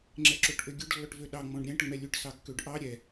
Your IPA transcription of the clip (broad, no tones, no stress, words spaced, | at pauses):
ŋ͡ǁɛǁoʈʔøɡʲɵɖ lːɔʈvøɗɑ ŋ͡mɔ̃ɖɾʲæ̃ʈŋ͡mɛ lʲʉʈsɑkːøɖ ʔɑ ɾʲɛ